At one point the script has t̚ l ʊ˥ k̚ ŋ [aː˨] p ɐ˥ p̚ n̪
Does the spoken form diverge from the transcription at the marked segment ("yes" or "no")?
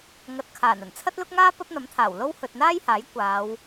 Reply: yes